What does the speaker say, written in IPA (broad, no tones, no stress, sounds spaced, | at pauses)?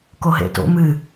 k o ɦ ḛ t o̰ m ɨ